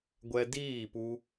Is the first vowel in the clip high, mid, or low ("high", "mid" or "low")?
mid